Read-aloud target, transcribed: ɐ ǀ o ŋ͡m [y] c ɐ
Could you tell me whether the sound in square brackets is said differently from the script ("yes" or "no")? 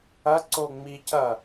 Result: yes